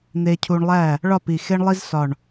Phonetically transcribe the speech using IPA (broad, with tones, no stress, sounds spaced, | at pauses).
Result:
n̪ e˧ cʰ u˧ ɳ lˠ æ˥˩ | ɭ ɒ˥˩ p i˨˩ x e˥ ɳ lˠ i˥ z s ɒ˨˩ ɳ